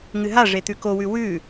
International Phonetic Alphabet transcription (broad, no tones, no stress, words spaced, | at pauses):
ŋɨɦa ʐet̪ʉkowʉ wʉ